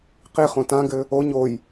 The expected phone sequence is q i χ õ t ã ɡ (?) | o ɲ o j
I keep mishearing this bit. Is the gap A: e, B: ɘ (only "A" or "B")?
B